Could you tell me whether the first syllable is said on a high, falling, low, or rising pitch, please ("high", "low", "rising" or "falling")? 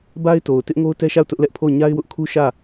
high